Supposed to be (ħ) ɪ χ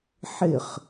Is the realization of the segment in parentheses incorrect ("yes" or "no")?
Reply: no